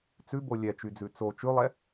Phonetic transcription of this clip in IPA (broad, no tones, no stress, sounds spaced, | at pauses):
t͡s ʉ b o lʲ ɛ t͡ʃ y d͡z ʉ t͡s o t͡ʃ ʉ lˠ ɛ